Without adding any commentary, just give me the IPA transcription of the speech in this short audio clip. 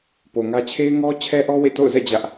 p o˨ ŋ ä˦ t͡ɕʰ e˦ ɪ̯ ŋ ɔ˦ t͡ɕʰ ɛ˦ ʔ ɔ˦ w ḛ˦˨ t o̰˦˨ ʊ̯ z ɛ̰˦˨ d͡ʑ ä˦ ʔ

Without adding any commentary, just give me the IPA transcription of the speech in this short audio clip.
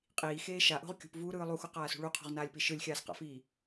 qʼ iː x eː ʃ a ʔ o̤ ʁ kʲ ṳ p v uː ɾ ɯː lˠ u x u q aː s ṳ ɭ u qʰ o̤ ʁ n aː lʲ p i ʃ ɯ lʲ xʲ aː s q a̰ f iː

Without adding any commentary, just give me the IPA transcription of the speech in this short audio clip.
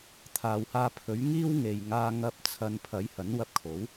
t̪ʰ aː˨ w h aː˧ pʰ ɵ˨˥ ɥ ŋ iː˥ w ŋ e˨ j ŋ aː˧ ŋ ɐ˧ p̚ t͡sʰ ɐ˨ n pʰ ɐ˨˥ j h ɐ˨˥ n w ɐ˧ p̚ kʰ o˨˥ w

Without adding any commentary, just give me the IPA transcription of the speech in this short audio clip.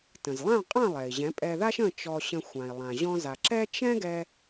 t ə̃˩ z lˠ ã˥˩ qʼ ã˥˩ lˠ ɛ˩ i̯ ʑ ɛ̃˩˥ pʼ ɛ˧ ð a˥ ʃ ə̃˥˩ t͡ʃ ɔ˧ ɕ ə̃˧ xʷ ã˩ i̯ lˠ ã˩ ʑ ɔ̃˧ z a˩ ǁ ɛ˥ t͡ʃ ɛ̃˥ ɡ ɛ˧

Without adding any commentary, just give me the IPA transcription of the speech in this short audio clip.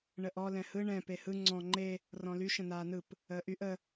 ɳ ə ʔ ɔ l ɛ̃ h ɯ ɳ ɛ̃ p e h ɯ ŋ͡ǀ ɔ̃ ŋ͡ǃ e | r ɔ̃ l y ʃ ə̃ n aː n ɯ p | əː ʔ y ʔ ə

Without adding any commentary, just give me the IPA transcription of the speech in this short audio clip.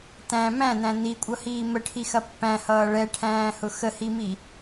t æ̃ m æ̃ n æ̃ n i kʷʼ ʌ h iː m ə ʈʰ i x ɐ pː æ̃ h ʌː ɭ ɛ ʈʰ æ̃ː h ʊ x ə h i m i

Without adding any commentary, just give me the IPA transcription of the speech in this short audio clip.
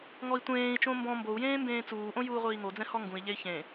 ŋ ɔ i̯ tʷ ẽː i̯ t͡ʃ õ m b ɔ̃ m b o u̯ j ẽː m b ẽː t͡s uː ʔ õ j uː ʁʷ iː ŋ o d͡z ɛ̃ h ɔ ŋ ɡ ũ i̯ ʎ e i̯ ç ẽ

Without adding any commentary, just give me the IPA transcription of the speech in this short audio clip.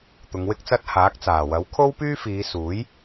t̪ ʊ˨˧ ŋ w ɪ˥ k̚ t͡s ɐ˥ t̚ h aː˨˥ k̚ t͡s aː˨˩ w ɐ˨˥ w kʰ o˥ w p yː˥ f iː˨˧ s uː˨˥ j

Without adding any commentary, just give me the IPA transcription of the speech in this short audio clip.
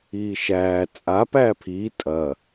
iː ʃ æː t͡sʼ a p æː pʰ iː tʼ ɐ

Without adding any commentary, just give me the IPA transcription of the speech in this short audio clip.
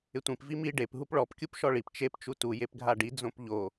ɪ tʷ ĩ p v i m i ɖ e p ɦ u p ɭ ɔ p kʲ u p ʃ ɔ ɭ i p t͡ʃ e p t͡ʃ u t u j e p ɡʱ a ɖ i d͡z õ p ʎ o

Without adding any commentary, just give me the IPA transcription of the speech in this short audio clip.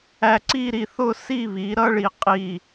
æ˧ ǀ i˥˧ ɾ i˧ θ ʊ˥˧ s i˥˧ β i˩˧ ɾ ʌ˥ ɭ i˧˩ qʼ i˧˩

